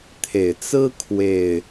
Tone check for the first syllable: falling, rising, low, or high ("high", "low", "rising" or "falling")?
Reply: low